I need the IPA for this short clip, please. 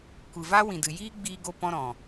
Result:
kʷɨ˨va˦wĩ˨ dɨ˨jiː˦ɡ͡biː˧ɡo˧ pɔ̃˦ɾɔ̃˨

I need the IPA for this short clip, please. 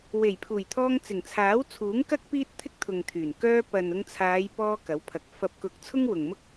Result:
we˨˩jpʰuː˨˩jt̪ʰɔː˧ŋ t͡sɪ˨˩ŋt͡sʰaː˨˥wt͡sʰuː˨˥ŋ kɐ˥k̚ piː˥t̚t̪ʰɪ˥k̚t̪ʰʊ˨ŋt̪ʰyː˨˩n kœː˧ pɐ˨nʊ˧ŋt͡sʰaː˨˧jpɔː˧ kɐ˨˥wpʰɐ˨k̚ fɐ˨p̚kʊ˨˥k̚ t͡sʰʊ˥ŋwʊ˨ŋmʊ˥k̚

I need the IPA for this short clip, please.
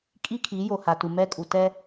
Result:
kʼi˦kʰi˨˦ jo˨ha˨tu˨ mɛ˦ kʼu˨tɛ˦

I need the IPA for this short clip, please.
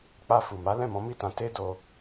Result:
k͡pa˧fu˨ma˨˦ lɛ̃˦˨mɔ̃˨˦mi˦˨tã˨˦ te˦do˧

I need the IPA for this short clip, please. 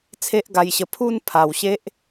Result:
t͡sʰe˦ʔɡa˧jɕə˧ pʰu˥˧n pʰa˨˩wɕe˦ʔ

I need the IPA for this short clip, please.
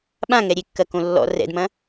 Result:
ɓãŋɛ ɾʲekːɐkõ lːɔ̰ rɛ̰dmɐ̃

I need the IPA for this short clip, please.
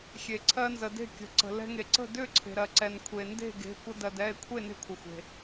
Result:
xʲe˩ǀʰɜ˧nzə˩de̤˥˨ kʲə̤˩ǀə̤˩ lɛ̤˧ŋe˩ǀə̤˥˨ dʏ˥˨ǀʰe̤˩ɾɜ˩ǀɛ˩n kʷʰe˩nde̤˥˨ɡe̤˩˧˩ kʷə˧dɜ˩ dɛ˩˧˩e̯kʷʰe˥˨ ne̤˥˨kʷʰə˩xʷe̤˩

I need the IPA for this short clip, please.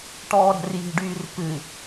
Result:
ʈɔːɾɛ̤rji̤ɖyːr pɨ

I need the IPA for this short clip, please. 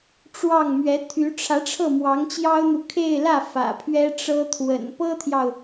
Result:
ʈ͡ʂwɑ˥˩ŋmɥɛ˧˥ t̪ʰy˧˥ ʈ͡ʂʰä˧˥ʈ͡ʂʰɤ˥˩ mwɑ˧˥ŋt͡ɕjɑ˥ʊ̯n̪u˨ kʰe˥˧ɪ̯lä˥˩ fä̰˨˩pʰɥɛ˥ ʈ͡ʂɤ˥ t̪ʰwə̰˨˩n pɤ˥t̪ʰjɑ˨ʊ̯

